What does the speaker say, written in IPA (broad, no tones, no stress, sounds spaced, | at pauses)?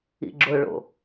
ḭ ɡ͡ǁ ʊ ɭ o̰